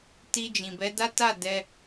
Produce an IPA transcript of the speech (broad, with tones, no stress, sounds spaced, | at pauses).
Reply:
t i˧ d͡ʒ ĩ˨ b ɛ˨˦ d a˦ t a˦˨ d ɛ˧